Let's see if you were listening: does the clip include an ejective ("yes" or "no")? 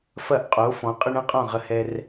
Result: yes